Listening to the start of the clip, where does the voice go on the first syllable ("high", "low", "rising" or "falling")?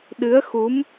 rising